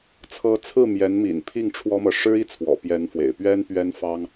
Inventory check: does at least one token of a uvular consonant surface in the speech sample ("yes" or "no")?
no